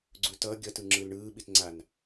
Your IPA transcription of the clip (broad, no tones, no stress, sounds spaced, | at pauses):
ɡ͡ǀ u t ʌː ɡʲ ʌ t ɯ ŋ͡ǁ ɯ l ɳ ɯː ɓ i t ŋ͡ǀ a n